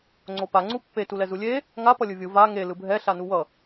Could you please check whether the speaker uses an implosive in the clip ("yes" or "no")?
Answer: no